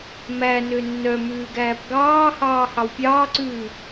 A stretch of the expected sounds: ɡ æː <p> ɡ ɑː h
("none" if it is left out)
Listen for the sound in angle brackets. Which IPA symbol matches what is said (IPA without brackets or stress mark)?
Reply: p